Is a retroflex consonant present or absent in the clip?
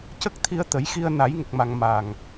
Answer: absent